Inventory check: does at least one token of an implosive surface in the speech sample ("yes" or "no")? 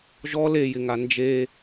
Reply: no